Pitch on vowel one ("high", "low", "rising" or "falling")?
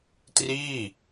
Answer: falling